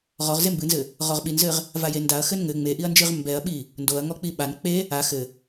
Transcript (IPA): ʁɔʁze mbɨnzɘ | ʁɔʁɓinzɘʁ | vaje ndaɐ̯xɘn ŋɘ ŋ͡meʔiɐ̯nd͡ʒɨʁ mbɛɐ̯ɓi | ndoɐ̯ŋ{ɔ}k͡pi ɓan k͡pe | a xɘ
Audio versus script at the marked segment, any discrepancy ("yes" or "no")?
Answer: no